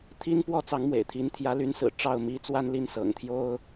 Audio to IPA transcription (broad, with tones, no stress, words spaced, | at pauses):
t̪ʰi˥npwɔ˥ t͡sɑ˧˥ŋmwḛ˨˩ɪ̯t̪ʰi˧˥n t̪ʰjä˧˥ly˧˥nsɹ̩˨˩ ʈ͡ʂɑ˥˩ʊ̯mi˥ t͡swa˥nli˥˩n sɤ̰˨˩ŋt̪ʰjo˥ʊ̯